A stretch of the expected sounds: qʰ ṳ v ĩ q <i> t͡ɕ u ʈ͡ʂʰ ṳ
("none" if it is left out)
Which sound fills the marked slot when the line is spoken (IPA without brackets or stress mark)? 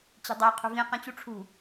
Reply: ĩ